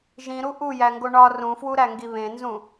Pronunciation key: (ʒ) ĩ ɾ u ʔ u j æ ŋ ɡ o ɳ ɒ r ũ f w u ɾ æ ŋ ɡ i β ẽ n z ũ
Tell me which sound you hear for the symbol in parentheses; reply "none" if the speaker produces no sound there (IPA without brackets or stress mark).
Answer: ʒ